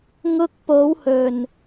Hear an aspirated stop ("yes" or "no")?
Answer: no